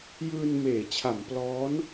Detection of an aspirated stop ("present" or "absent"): present